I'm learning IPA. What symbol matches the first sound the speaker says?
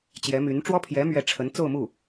t͡ɕ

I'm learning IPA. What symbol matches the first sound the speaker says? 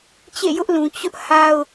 t͡ɕ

